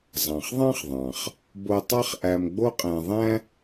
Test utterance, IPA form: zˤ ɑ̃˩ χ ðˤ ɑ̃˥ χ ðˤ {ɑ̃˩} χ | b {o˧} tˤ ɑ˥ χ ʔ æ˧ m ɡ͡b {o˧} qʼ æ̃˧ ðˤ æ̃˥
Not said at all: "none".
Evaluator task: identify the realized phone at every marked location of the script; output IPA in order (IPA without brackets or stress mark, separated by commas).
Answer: ɑ̃˩, o˧, o˥